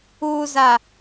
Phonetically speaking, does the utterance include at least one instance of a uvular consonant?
no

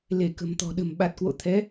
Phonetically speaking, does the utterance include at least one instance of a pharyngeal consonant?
no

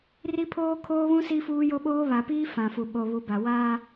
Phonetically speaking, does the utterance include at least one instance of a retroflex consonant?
no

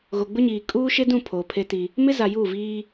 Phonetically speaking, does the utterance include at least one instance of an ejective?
yes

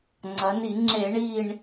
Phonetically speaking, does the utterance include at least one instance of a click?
yes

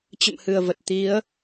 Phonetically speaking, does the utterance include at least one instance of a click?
no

